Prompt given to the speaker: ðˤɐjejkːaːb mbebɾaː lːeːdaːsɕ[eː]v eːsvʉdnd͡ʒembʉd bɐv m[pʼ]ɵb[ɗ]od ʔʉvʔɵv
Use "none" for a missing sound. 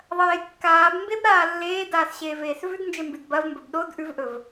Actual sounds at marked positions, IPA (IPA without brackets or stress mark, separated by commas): eː, b, ɗ